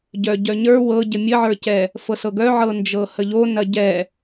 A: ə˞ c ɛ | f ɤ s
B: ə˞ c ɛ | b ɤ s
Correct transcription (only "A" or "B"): A